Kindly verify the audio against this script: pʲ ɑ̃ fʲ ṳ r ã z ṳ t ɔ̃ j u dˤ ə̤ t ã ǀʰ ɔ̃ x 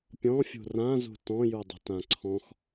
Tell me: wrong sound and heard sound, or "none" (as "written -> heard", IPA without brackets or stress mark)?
ɑ̃ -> ɔ̃